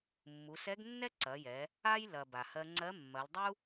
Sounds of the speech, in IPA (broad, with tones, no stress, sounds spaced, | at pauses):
mː u˩˧ s ɛ˧˥ ɡ nː ɛ˥ ǀ ɐ˩˧ j ɛ˩˧ | a˥ j l ɐ˩ b a˩ h ɜ˧ ŋ͡ǀ ɜ˧˥ mː ɐ˩˧ l dˤ u˥